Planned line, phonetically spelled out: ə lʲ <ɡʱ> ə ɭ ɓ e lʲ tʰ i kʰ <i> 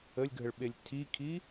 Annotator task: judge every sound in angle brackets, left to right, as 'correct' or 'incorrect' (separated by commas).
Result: correct, correct